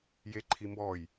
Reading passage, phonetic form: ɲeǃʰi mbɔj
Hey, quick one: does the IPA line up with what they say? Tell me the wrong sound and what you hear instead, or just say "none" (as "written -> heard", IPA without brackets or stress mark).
ɲ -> j